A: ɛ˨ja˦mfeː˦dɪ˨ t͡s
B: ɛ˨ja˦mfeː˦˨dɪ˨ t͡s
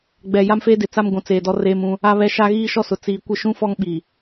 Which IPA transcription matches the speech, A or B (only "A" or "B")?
A